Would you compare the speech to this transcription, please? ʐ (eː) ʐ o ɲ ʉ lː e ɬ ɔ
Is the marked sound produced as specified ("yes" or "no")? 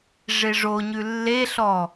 no